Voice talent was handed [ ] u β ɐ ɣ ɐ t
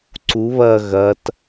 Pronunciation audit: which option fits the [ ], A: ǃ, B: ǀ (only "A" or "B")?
B